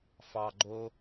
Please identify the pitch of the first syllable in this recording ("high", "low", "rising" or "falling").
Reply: low